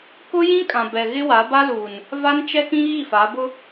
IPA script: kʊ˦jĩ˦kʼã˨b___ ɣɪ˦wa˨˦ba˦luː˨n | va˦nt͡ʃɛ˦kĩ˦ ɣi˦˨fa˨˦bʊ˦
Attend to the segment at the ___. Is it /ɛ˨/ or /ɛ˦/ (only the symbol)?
ɛ˨